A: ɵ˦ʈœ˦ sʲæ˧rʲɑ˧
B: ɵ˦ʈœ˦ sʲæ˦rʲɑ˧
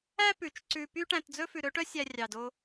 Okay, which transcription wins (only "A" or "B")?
B